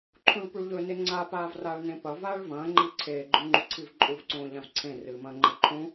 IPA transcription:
ǃʰũɭpuɭʎɵ neŋ͡ǀa paːvraːɭnẽpɐ vaːɭvɐ̃ː ŋ͡ǃiǀʰeː ɡ͡ǃʉŋ͡ǃuǀʰivǃʼuv ǀõːʎãvǀʰẽ rɨːmɐ̃ːŋ͡ǃeǃʰũ

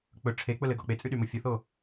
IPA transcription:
k͡pɵ ʈ͡ʂʰek͡pʊlɘɡɔ k͡pet͡sʼyɗymo fʲʊθo

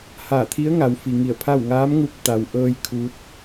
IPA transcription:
haː˧˩t̪ʰi˧˥ə̯ŋa˩˧w fi˩ŋi˧˩ə̯pʰa˥˨w ŋaː˧˥mŋu˧p̚ t̪a˩wʔɤː˧j kʰu˧˥t̚

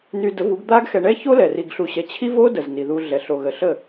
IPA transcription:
ny˧də˨˦vu˨˦ɡ d̪a˦ɡ xɛ˧ ɳɛ˦ço˦lɛ˨ ri˧ɡɬu˧ɕɛ˧ t͡ɕʰi˦vo˦də˨z ni˨ðu˧ɮɛ˨ ɬo˨ɣə˨ɬə˦˨

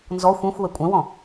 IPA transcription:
nzɔ xʷĩxʷ wɛkʷʼɛ̃wɔ̃

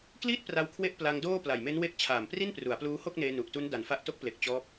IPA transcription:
kliː˥˩t̚pra˧w kʰwe˦˥ʔ pla˧ŋdoː˥˩ pla˨˩jme˦˥nwe˦˥k̚ t͡ɕʰaː˨˩mpri˥˩npru˩˦a̯pluː˦˥ ho˥˩k̚neː˧nu˨˩ʔtu˦˥n da˨˩nfa˦˥ʔ to˦˥k̚ple˨˩k̚ t͡ɕɔː˦˥p̚

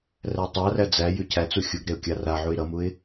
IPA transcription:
rætˤaræ d͡zæjʉ cʰæt͡su xʲuɡɾeʊ̯ kʲaraʕuɪ̯ ɾʌmuɪ̯

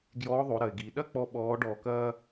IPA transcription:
ɡjɔː˧˥ðˤo˩˧ɾɐ˩ɪ̯ɡiː˩ ɗɐ˥k͡pɔ˧ ɓɔː˧˥ɖɔː˧kɐː˥

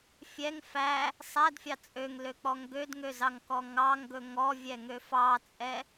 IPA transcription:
fʲɛŋ fæ | sˤædfʲɑ t͡sʼøŋløk͡pɔŋ ɡødŋøzɑŋkɔ ŋɑŋɡɵ ŋɔvʲɛŋø fɑt͡sʼɛ

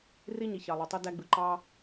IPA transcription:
ri˦ɲi˨ çɑ˨lˠo˨tˤɯ˧ dæ˧ɡ͡bɯ˨ǃɑ˦

